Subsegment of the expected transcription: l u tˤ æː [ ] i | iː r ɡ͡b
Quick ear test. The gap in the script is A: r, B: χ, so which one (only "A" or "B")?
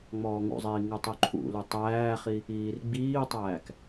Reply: B